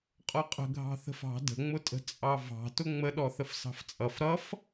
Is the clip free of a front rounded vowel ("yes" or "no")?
yes